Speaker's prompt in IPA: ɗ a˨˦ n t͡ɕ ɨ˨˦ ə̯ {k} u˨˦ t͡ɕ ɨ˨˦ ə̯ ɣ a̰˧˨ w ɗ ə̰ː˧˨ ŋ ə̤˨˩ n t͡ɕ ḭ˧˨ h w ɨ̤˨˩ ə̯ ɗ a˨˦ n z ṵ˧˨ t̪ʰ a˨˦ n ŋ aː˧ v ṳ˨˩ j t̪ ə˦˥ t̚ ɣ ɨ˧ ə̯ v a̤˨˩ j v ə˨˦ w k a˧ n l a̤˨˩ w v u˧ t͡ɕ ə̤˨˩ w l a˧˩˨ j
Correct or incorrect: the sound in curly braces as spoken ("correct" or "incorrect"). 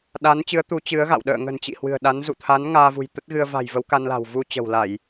incorrect